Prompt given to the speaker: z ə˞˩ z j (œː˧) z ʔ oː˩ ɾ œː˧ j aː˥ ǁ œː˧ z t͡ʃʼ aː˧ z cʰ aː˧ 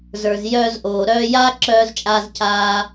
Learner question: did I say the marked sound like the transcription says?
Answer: yes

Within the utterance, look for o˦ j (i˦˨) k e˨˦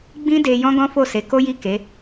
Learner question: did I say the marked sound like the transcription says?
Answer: yes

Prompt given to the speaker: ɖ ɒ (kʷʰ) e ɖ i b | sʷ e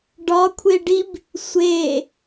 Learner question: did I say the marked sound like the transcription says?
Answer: yes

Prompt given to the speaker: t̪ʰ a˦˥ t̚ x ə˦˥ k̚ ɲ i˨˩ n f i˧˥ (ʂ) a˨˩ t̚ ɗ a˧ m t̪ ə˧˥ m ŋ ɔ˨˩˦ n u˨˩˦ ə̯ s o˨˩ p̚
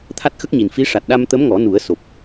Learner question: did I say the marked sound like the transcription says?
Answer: yes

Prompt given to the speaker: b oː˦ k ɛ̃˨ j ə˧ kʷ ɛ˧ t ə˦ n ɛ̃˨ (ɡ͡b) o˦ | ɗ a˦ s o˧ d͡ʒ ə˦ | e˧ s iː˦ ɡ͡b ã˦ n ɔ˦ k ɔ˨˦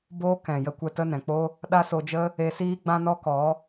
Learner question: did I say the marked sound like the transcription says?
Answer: no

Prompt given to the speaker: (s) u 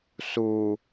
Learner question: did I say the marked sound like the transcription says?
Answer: yes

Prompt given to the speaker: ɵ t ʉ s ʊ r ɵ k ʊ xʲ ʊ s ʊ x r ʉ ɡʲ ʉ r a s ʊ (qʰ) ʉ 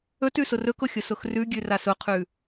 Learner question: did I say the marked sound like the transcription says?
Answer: yes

